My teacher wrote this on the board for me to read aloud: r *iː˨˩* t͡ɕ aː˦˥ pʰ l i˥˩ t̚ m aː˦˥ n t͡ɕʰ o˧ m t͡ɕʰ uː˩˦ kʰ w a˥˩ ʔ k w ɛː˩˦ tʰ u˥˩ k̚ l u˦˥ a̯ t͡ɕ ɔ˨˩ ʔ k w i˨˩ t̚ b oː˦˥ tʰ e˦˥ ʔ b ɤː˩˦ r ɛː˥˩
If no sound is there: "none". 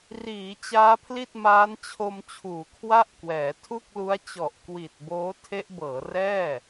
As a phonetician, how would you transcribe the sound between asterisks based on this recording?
iː˩˦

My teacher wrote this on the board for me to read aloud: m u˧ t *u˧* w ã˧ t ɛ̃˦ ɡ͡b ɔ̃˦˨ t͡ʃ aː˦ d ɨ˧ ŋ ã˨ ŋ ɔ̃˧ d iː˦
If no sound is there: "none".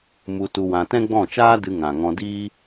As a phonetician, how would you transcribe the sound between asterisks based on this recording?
u˧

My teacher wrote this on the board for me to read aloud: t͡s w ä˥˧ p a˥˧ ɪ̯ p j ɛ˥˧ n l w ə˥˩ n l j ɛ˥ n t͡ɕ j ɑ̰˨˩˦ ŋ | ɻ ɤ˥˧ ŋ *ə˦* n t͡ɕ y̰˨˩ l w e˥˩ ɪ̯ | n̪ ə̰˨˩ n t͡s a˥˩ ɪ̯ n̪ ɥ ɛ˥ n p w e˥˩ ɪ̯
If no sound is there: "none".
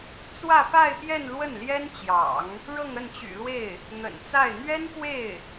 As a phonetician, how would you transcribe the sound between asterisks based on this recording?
ə˥˩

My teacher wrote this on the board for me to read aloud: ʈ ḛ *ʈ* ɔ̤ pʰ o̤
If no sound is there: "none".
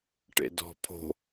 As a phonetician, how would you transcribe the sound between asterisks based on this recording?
d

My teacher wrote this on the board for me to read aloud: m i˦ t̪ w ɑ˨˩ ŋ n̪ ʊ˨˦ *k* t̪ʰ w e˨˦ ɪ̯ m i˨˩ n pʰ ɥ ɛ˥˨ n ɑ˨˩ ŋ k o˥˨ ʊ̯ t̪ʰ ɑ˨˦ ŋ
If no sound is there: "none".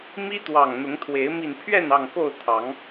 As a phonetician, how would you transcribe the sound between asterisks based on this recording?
ŋ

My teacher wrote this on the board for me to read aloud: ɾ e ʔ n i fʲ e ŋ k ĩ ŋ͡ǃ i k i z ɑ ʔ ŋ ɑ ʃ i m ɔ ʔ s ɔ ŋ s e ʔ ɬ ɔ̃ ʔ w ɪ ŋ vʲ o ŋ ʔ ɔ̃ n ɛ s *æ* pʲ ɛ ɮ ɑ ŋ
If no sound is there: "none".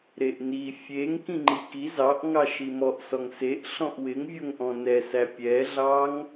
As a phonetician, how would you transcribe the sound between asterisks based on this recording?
æ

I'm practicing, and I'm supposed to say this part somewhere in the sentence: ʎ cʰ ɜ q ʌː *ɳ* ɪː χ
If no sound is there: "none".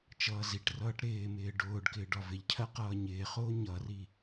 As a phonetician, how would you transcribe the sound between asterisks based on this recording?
ɲ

